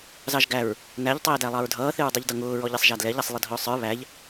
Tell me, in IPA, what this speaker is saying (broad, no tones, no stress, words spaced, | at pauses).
zɑʒɡæɹ | næʎ tˤɛːdælˠɑɹdʱʌː θɪɹdˤiʎdʌŋʊː ɹɔʎisˤʒædlɛʎ æsˤlˠɪdʱʊːsˤə˞ βæʎ